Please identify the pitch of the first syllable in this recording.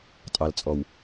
low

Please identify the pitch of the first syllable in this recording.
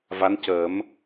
rising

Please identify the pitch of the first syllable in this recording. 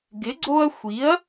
rising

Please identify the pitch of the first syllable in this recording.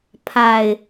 low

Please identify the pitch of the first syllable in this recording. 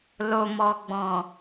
low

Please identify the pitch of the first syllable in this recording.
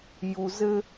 low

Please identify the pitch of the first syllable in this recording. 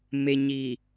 low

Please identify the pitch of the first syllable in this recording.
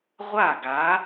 falling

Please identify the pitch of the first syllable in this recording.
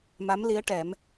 rising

